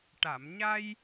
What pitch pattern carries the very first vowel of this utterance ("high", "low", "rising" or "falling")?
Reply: low